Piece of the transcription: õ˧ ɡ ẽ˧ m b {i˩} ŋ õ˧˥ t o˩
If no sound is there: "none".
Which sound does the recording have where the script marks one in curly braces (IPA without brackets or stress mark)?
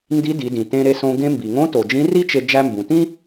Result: i˩